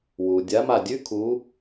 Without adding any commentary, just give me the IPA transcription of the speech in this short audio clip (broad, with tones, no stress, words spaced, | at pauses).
wu˩ dʲa˨˦ma˧˩dʲʉ˦˥kʰu˨˦